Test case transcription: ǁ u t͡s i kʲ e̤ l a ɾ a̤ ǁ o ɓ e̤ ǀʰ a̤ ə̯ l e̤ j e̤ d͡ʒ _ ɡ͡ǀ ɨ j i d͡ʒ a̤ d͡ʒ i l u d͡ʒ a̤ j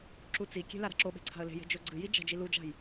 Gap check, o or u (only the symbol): o